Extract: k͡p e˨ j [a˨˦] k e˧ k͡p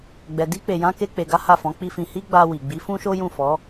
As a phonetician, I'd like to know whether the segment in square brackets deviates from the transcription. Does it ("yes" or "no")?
yes